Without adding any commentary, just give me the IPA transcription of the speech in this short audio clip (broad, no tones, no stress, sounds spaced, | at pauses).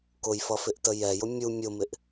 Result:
k ʊ j f ʌ f ɪ ʔ t ə j ɛ j ʊ mʲ u mʲ ʊ m ɪ ʔ